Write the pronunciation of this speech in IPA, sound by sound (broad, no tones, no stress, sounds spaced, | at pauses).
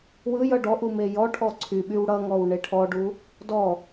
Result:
w ɯ j ʌ ɖ ɔ ʔ u m e j ɔ ʈʰ ɔ ǀʰ y ɓ y w ɽ ʌ ŋ ɔ w ɳ e ʈʰ ɔ ɖ u | d ɔ